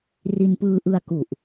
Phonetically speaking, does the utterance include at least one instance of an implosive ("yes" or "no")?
no